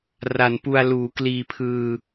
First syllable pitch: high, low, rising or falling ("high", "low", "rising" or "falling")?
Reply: low